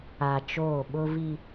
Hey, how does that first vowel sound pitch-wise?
low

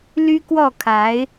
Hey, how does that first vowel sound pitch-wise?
high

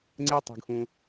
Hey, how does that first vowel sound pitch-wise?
high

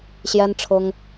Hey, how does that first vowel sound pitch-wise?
high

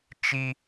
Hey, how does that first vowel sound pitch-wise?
high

